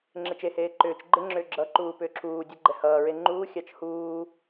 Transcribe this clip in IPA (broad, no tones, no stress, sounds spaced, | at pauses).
ŋ͡ǁ ɪ t͡ʃ e h eː ǃ ʏː t͡ʃ ɡ͡ǃ ɪ ŋ͡ǁ ʏː ɡ͡ǁ ʌ ǃ uː p ʏː ǁʰ uː dʲ ʌ ɡ͡ǃ ɛ h ʌː ɹ e ŋ͡ǃ uː xʲ ɑ t͡ʃ h uː